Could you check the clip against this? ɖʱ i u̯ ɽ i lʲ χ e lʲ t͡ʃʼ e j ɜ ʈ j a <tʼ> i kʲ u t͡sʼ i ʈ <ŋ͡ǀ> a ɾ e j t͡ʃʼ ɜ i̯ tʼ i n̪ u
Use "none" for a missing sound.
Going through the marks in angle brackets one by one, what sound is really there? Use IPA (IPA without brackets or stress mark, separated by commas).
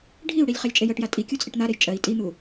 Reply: tʼ, n̪